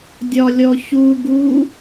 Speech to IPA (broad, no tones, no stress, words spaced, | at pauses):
dʲɒlʲɔçu ɡu